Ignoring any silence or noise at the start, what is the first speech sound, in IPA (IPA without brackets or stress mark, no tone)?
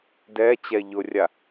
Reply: d